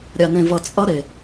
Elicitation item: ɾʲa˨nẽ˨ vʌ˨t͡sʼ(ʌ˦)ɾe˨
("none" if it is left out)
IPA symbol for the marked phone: ʌ˦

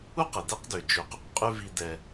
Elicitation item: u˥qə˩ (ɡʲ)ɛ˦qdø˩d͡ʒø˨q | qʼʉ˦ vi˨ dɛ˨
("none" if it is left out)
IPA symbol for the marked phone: d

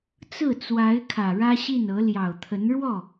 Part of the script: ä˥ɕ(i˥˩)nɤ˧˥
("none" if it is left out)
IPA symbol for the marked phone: i˥˩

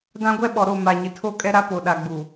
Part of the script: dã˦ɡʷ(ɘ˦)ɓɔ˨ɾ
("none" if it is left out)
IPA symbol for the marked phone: ɛ˦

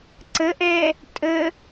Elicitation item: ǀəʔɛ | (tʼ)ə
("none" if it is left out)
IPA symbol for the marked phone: tʼ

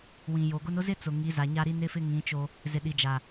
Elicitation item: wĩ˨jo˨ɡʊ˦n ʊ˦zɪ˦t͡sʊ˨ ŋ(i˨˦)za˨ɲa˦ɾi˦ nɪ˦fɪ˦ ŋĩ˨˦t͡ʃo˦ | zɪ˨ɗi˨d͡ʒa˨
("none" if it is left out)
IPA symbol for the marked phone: i˨˦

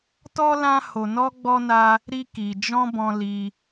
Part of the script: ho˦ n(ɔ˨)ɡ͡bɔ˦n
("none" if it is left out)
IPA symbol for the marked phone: ɔ˦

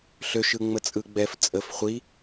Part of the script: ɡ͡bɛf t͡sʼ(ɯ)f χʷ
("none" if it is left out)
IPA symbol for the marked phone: ə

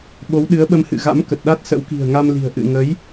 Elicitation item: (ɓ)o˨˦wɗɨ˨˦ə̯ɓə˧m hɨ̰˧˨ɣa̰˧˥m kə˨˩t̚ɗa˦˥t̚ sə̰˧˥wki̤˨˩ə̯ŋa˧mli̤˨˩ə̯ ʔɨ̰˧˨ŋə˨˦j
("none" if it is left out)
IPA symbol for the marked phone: ɓ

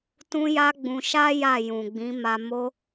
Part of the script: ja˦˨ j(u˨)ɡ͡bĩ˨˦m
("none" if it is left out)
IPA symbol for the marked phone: ũ˨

